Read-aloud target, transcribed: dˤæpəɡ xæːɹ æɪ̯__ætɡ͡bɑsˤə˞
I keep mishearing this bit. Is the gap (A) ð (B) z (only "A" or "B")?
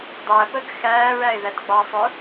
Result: A